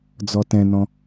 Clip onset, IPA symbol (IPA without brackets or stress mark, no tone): d͡z